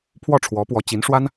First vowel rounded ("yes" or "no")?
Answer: yes